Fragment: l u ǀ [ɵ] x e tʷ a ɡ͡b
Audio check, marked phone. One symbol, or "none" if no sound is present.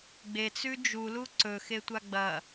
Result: ɵ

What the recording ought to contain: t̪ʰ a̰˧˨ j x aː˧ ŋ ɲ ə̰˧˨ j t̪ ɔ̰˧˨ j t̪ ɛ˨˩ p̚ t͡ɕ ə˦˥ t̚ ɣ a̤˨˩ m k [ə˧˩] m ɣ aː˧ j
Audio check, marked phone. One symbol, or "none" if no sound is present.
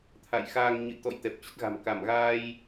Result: a˧˩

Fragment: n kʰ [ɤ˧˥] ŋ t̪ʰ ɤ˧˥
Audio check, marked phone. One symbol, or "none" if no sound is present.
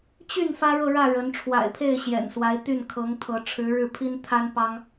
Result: ɤ˧˥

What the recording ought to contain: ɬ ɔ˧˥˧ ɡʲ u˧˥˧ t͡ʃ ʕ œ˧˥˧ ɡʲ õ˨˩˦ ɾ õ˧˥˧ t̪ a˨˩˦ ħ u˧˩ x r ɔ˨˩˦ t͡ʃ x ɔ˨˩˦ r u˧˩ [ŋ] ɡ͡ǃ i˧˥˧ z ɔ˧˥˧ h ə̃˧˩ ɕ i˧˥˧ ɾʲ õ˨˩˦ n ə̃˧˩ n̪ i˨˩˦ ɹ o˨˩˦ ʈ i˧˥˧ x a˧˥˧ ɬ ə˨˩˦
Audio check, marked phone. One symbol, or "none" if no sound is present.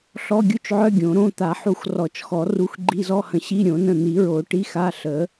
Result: x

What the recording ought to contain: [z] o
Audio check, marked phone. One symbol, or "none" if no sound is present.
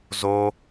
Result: z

